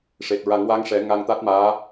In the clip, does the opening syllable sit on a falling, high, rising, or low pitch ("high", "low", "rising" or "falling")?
low